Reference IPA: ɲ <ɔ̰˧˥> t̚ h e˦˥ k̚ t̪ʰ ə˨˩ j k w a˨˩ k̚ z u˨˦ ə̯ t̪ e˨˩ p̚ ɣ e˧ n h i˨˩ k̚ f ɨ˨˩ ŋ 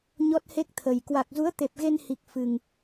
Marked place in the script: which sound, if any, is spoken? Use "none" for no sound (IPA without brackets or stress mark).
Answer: ɔ˦˥